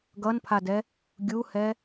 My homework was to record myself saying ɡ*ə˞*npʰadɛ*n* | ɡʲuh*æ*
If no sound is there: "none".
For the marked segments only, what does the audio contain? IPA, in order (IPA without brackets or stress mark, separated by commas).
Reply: ʌ, none, ɛ